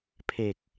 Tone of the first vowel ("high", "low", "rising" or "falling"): low